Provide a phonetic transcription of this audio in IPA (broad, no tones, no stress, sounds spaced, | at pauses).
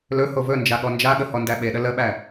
l ɵ h o v ɵ n d͡ʒ a ɠ ɔ n d͡ʒ a ɠ ə h ɔ n d æ ɓ e ɗ ə l ə ɓ æ